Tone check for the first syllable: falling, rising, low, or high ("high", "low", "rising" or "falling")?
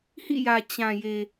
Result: falling